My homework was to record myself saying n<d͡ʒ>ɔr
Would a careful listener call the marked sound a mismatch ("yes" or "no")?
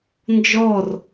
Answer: no